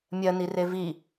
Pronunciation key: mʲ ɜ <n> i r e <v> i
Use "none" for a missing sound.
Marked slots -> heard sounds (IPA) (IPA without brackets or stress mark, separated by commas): n, v